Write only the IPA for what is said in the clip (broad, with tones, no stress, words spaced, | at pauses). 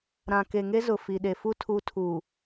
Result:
ɾã˨ke˨ŋe˦ zʊ˨fi˨ ɗe˨fu˦ tʰu˦ tʰuː˨